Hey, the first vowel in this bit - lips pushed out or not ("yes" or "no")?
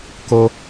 yes